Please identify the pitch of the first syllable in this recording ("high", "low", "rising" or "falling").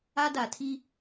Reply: high